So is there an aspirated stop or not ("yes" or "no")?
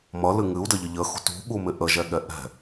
no